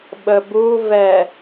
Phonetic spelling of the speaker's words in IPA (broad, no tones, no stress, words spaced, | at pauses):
ɓəbuvɛ